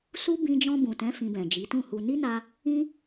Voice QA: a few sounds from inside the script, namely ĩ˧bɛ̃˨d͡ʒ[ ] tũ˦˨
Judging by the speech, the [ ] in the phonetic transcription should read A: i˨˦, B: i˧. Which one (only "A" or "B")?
A